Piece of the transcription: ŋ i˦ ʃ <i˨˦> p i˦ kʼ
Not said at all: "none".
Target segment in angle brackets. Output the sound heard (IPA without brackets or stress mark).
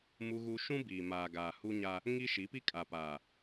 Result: i˨˦